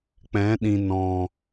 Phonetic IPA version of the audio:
k͡p ɛ̃˨˦ ɗ ĩ˨ n ɔ̃˨

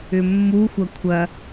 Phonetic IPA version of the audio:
ʏ mː u xʷ ɐ kʷʰ ɐ

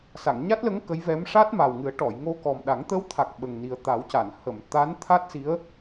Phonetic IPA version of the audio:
s a˨˩˨ ŋ ɲ a˦˥ t̚ l ə˧˥ ŋ k ə˧˥ j v ɛ˧˥ m ʂ a˦˥ t̚ m a˨˩ w ŋ ɨ˨˩˦ ə̯ ʈ ɔ˨˩˨ j ŋ o˧ k ɔ˨˩ m ɗ a˨˩˦ ŋ t̪ ə˧˥ w t̪ʰ a˨˩ k̚ ɓ ə˨˩ ŋ n i˨˩ ə̯ t̪ a˨˩˦ w c a˨˩˨ n h ə˨˩˨ m t̪ a˧˥ n t̪ʰ a˦˥ t̚ s i˧˥ ə̯

